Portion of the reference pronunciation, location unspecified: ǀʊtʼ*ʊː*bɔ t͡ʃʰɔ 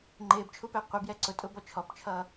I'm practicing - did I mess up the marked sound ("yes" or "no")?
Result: no